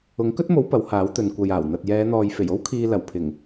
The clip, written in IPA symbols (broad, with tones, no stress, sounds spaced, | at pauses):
ʊ˨˥ ŋ k ɵ˥ t̚ m o˨˥ w p ɐ˨˥ w h aː˨˥ w t̪ ɵ˨ n kʷ ɐ˨ j aː˨˩ w n̪ ɐ˨ t̚ j ɛː˨˧ n̪ ɔː˨ j f e˨˩ j o˥ w kʰ iː˧ l ɐ˨˩ w pʰ ɪ˨˩ ŋ